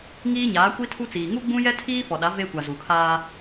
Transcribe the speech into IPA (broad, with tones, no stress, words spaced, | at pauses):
ŋiː˦ɲaː˨˦kʷi˦tʰu˦ t͡siː˨ ŋu˦ɡ͡bũ˦jɛ˦ tʰiː˦fɔ˨ɗa˨˦ ve˦kʷa˨ zu˨kʰaː˦